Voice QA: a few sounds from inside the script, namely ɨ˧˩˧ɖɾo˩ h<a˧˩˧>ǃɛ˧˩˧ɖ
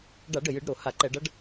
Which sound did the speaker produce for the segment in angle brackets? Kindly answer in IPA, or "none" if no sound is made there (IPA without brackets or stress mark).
a˧˩˧